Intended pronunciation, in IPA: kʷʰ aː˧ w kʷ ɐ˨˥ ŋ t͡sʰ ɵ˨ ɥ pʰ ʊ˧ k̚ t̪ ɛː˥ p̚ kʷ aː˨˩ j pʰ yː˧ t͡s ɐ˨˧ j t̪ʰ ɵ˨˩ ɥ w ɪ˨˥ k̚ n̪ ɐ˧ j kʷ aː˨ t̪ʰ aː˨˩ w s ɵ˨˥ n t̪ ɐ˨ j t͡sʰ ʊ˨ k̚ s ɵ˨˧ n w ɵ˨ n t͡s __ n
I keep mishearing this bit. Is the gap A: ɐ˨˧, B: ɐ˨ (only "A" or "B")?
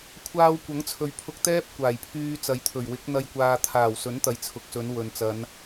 A